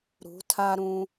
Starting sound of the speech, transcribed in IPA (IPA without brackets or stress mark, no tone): ɾ